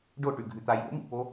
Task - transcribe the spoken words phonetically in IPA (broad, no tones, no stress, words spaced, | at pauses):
ɖoʈʉɡʱʉt̪a jo̰mḭpo